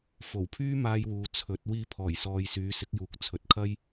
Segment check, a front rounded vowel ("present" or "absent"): present